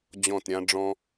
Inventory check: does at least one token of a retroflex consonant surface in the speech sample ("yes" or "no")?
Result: yes